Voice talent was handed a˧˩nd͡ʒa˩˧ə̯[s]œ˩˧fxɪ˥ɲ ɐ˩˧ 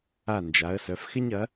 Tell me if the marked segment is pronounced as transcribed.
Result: yes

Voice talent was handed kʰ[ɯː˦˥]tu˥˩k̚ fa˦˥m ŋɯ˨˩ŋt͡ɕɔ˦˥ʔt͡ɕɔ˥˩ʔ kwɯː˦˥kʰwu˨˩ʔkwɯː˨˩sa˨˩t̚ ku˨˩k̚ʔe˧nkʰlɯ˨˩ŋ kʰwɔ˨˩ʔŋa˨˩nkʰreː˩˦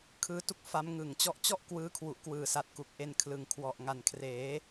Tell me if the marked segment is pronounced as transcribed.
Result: yes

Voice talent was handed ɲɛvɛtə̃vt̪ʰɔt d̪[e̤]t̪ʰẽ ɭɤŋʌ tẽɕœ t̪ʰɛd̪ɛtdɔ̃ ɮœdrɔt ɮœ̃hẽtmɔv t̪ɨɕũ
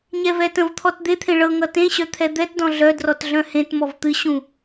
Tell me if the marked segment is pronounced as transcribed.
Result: no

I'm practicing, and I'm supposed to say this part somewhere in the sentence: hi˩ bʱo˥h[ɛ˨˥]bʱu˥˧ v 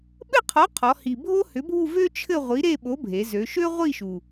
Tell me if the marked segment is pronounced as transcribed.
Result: no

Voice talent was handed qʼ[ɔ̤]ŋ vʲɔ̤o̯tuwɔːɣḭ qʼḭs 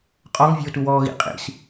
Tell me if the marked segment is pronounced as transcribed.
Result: no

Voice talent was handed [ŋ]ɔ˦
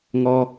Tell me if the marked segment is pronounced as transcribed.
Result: yes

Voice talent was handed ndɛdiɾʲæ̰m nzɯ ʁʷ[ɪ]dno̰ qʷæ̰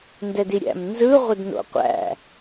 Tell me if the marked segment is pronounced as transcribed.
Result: yes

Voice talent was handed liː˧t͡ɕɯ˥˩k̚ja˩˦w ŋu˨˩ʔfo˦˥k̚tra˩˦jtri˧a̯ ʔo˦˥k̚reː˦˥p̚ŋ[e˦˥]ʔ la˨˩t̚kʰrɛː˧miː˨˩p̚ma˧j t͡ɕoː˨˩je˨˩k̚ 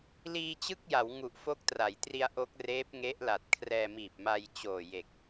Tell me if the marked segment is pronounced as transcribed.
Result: yes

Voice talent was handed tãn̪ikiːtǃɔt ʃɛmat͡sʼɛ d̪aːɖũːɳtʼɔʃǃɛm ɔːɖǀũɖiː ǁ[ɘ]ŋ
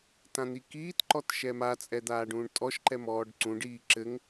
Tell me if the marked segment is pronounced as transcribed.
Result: yes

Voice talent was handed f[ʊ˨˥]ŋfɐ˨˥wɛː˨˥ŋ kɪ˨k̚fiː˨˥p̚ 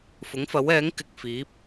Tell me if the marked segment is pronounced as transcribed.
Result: yes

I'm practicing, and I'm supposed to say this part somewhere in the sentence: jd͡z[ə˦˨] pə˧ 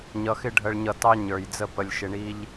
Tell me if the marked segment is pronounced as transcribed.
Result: yes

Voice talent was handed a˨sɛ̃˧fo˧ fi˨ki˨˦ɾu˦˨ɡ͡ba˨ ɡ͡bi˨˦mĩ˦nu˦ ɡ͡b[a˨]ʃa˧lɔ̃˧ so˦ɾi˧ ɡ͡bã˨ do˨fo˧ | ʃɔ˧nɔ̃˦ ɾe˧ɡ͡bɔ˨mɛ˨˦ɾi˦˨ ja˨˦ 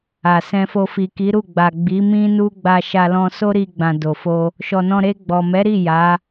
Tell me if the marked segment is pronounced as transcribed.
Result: no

